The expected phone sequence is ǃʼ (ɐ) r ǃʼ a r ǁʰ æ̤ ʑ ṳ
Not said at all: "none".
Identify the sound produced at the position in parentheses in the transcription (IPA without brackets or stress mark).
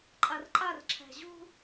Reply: a